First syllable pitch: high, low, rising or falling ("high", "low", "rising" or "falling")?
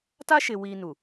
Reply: high